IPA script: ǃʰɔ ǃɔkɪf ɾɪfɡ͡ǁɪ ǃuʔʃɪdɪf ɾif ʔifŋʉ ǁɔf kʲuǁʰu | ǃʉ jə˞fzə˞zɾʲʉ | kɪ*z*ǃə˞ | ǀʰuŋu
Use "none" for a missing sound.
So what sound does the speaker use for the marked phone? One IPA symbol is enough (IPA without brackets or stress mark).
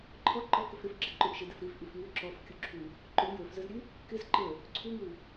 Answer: z